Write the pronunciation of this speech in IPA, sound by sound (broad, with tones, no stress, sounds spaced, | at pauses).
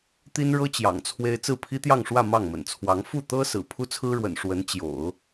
t̪ i˥ n ɻ ɤ˥ t͡ɕ j ɑ̰˨˩ ŋ t͡sʰ w e˥ ɪ̯ t͡s ɹ̩˥˩ pʰ i˥ t̪ j ɑ˥˧ ŋ ʂ w ä˥˧ m ɑ˥˩ ŋ m ə̰˨˩ n t͡sʰ w ɑ˧˥ ŋ f u˥˩ t̪ ɤ˥ s ɹ̩˨˩ pʰ u˥ t͡sʰ ɹ̩˥ ɻ w ə̰˨˩ n ʂ w ə˧˥ n t͡ɕ j o̰˨˩˦ ʊ̯